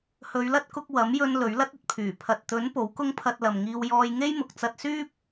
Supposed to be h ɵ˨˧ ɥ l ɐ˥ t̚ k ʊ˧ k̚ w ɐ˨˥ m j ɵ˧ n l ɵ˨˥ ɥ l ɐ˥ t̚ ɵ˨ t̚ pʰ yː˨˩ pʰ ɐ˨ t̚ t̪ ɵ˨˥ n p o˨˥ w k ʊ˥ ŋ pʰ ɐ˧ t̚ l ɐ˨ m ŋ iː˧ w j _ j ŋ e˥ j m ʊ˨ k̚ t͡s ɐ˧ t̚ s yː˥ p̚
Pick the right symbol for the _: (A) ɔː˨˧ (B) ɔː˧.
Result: B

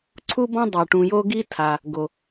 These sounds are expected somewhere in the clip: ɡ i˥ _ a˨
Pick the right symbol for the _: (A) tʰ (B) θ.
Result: A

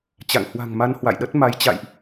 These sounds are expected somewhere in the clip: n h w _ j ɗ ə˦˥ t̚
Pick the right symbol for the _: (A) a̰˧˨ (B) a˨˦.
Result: A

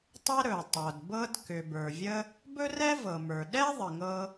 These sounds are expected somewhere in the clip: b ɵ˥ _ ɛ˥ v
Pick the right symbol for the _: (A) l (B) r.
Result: B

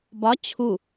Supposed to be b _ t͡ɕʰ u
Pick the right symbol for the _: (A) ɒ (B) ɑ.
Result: A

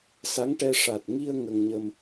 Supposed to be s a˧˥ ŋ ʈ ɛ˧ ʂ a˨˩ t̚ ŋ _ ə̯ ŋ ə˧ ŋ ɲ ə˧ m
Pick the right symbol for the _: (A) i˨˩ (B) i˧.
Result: B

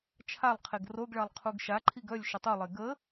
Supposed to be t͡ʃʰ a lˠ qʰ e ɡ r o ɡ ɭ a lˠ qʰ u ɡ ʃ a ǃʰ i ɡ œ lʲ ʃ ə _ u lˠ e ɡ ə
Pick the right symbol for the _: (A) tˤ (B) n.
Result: A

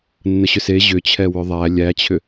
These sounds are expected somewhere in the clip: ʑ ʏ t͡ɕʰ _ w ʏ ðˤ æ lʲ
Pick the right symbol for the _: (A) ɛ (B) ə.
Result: A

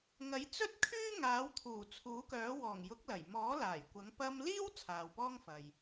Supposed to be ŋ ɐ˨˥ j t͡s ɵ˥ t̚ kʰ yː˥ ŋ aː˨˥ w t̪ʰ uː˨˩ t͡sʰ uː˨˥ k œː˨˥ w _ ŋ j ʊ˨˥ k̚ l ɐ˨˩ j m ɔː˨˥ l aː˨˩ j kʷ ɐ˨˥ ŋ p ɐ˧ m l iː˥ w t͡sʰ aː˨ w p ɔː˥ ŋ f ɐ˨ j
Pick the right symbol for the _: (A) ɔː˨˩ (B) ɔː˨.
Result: A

